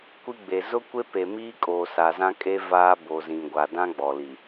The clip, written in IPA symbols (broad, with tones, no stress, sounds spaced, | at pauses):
kʷ i˦ ɡ͡b e˨ z ʊ˦ kʷ e˦ p e˨ m iː˦ kʼ o˨ s a˨ z ã˦ kʼ e˦ v aː˦ b o˨ z ĩ˨ ɡʷ a˨ d ã˦ ɡ͡b ɔ˨ l i˨